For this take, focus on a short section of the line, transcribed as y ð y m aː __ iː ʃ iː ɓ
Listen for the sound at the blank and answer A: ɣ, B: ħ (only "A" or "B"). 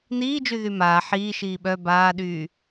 B